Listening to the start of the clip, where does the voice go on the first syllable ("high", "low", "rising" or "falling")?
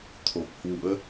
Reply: low